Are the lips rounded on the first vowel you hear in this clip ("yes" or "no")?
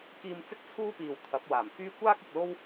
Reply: no